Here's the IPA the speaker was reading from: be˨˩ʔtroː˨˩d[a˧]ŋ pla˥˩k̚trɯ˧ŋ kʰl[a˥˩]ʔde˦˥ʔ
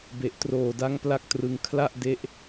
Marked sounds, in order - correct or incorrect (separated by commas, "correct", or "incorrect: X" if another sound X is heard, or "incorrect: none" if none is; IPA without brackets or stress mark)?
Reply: incorrect: a˦˥, correct